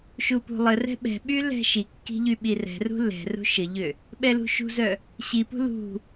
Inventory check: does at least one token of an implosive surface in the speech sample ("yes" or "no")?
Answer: yes